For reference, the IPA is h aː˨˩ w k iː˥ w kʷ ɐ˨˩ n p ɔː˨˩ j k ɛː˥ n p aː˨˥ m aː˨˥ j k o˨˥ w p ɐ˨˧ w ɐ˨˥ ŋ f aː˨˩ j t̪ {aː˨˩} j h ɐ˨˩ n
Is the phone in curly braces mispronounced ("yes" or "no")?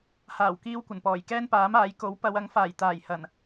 no